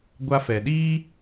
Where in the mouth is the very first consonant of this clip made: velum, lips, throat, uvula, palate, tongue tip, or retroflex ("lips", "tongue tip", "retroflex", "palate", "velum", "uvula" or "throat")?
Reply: velum